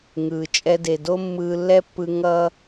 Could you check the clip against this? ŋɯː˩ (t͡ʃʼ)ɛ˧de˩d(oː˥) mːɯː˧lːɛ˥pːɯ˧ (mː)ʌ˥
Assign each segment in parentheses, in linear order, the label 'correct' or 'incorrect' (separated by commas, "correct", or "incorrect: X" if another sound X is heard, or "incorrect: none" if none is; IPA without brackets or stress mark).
correct, incorrect: o˥, incorrect: ŋ